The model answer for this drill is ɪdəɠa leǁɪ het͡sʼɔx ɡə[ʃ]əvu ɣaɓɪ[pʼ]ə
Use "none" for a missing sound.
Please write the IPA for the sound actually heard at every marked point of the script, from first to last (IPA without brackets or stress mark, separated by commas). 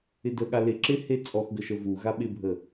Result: ʃ, bʱ